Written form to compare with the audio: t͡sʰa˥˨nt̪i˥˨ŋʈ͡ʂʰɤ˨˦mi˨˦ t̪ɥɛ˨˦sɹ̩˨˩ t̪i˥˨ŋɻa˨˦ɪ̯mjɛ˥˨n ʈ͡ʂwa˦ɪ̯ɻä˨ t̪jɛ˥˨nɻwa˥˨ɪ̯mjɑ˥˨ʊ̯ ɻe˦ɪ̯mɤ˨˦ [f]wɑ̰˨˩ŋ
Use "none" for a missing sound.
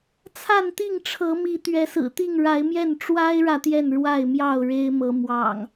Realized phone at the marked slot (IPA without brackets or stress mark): m